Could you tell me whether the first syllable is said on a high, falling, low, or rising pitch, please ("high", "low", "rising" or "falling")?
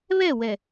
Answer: falling